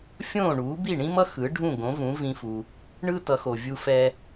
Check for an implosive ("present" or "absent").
absent